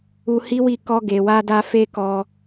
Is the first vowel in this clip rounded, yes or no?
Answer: yes